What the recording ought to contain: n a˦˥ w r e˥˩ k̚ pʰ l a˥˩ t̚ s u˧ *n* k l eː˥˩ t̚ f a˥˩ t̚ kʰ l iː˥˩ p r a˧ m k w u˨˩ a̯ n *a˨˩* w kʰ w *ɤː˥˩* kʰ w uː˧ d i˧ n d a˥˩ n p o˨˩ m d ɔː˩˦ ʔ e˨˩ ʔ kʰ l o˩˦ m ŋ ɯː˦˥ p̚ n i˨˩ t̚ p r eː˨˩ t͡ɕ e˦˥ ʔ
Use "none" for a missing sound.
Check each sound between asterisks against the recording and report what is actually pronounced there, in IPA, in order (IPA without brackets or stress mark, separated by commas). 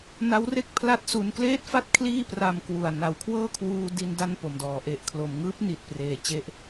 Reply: n, a˨˩, ɤː˥˩